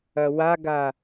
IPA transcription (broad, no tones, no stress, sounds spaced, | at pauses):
ɐ w a ɡ a